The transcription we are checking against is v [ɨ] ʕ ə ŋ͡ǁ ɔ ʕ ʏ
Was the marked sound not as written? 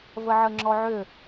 yes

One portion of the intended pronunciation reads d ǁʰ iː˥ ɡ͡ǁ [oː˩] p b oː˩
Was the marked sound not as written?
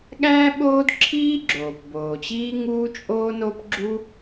no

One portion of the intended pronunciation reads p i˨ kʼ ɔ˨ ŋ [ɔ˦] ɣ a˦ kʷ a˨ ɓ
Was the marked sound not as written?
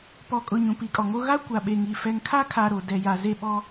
yes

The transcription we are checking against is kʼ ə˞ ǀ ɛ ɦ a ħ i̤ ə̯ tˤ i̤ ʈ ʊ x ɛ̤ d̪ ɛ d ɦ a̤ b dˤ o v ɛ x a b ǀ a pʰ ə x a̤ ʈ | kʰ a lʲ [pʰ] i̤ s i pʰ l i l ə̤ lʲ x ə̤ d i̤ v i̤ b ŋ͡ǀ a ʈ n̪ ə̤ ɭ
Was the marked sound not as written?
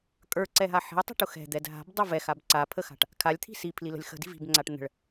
yes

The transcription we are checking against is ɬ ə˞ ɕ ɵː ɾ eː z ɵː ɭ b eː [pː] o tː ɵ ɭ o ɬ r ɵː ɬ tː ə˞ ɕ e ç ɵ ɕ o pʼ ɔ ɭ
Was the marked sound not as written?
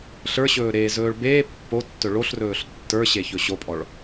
no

